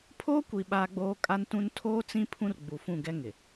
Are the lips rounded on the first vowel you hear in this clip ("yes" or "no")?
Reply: yes